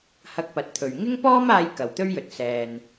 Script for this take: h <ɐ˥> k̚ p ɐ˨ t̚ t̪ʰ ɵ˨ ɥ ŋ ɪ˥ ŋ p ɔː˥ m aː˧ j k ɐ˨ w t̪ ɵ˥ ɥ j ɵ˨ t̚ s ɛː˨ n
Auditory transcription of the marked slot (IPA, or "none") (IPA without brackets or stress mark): ɐ˧